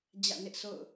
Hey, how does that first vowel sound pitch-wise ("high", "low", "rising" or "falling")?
falling